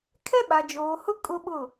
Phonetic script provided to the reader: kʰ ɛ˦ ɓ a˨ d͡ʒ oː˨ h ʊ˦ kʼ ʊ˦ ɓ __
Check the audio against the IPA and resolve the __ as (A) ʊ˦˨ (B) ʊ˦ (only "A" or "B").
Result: A